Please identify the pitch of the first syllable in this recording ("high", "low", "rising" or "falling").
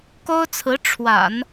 high